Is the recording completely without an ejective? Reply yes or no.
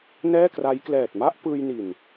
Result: yes